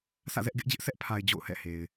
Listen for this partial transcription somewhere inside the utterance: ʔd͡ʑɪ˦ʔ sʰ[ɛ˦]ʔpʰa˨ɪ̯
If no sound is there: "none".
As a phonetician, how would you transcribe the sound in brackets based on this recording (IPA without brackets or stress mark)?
ɛ˦